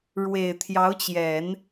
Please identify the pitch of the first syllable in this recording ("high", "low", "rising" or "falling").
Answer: low